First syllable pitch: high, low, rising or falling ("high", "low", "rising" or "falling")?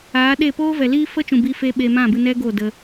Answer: rising